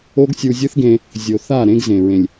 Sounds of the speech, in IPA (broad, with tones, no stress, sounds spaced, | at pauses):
o˦ ɡ sʲ u˧ zʲ ɯ˦ θ ɡ ẽ˧ | zʲ o˨ θ a˦˨ ɾ ẽ˦ ɡ z ẽ˨ ɹ ẽ˨ lʲ